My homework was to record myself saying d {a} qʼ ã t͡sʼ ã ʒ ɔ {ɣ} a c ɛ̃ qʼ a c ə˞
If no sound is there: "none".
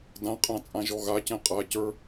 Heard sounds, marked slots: ã, ɣ

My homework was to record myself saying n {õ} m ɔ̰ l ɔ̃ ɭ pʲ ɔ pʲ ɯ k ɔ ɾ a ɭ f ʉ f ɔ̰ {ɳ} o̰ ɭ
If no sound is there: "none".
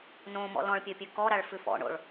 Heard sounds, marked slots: õ, ɳ

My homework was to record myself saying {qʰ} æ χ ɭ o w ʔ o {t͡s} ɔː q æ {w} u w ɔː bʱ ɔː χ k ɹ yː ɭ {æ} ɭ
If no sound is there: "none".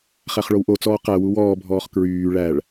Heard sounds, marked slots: χ, t͡s, w, æ

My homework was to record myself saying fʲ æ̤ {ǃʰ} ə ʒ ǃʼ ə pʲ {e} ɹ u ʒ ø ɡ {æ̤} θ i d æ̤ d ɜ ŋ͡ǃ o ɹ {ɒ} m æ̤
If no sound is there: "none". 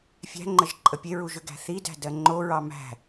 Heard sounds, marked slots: ŋ͡ǃ, e, æ̤, ɑ

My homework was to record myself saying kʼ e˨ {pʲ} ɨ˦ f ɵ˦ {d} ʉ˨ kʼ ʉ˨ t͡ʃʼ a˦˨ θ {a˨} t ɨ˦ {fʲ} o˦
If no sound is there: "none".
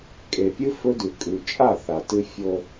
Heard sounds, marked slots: pʲ, d, a˨, fʲ

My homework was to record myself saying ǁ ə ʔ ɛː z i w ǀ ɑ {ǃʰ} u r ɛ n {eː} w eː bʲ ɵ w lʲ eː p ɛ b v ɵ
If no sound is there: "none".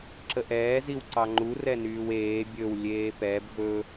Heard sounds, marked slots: ŋ͡ǃ, yː

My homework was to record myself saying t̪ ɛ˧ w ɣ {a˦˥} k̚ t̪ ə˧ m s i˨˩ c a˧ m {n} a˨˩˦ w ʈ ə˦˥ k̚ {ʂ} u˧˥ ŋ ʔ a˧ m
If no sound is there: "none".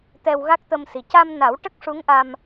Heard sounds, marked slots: a˦˥, n, ʂ

